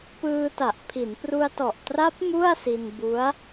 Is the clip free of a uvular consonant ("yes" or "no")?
yes